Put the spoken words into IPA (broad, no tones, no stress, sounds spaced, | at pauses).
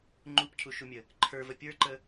ŋ͡ǃ u p cʰ u ʃ u mʲ ə | ǃʰ ə˞ v ə pʲ ə˞ ǃ ə